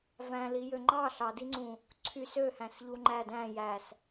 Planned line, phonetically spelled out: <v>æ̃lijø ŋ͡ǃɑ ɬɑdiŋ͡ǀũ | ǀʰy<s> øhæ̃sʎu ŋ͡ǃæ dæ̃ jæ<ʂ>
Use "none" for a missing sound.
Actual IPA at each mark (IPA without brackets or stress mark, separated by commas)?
v, s, s